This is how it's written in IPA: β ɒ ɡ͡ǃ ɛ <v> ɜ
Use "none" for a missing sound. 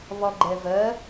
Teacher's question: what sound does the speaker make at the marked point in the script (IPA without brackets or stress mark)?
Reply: v